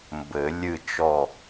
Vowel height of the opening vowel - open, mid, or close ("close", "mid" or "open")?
mid